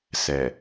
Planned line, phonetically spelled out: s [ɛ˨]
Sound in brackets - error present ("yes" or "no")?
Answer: no